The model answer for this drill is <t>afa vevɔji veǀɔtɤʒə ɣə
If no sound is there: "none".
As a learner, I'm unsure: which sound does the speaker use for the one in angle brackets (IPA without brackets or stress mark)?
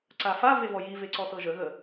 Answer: ǀ